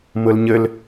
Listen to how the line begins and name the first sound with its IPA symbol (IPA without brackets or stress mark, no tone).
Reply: m